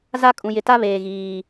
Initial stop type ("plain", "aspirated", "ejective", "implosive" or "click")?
ejective